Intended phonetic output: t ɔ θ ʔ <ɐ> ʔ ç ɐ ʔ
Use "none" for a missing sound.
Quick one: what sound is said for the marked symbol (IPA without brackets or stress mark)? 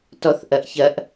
ɐ